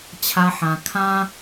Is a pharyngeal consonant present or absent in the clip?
present